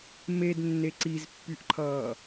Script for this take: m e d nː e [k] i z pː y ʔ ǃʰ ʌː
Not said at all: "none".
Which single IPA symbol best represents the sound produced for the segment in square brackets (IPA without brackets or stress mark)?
ǀ